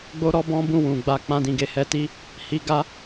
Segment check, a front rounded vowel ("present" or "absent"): absent